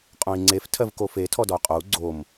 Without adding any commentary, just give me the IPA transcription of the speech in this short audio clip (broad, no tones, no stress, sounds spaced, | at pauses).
qʼ õ i̯ ŋ͡ǀ e f tʰ ɜ v k o f e tʰ ɔ d ɔ y̯ qʼ o u̯ ɡ͡ǀ o m